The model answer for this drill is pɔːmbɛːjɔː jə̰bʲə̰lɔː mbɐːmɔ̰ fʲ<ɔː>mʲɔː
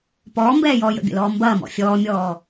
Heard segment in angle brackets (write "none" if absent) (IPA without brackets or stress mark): ɔː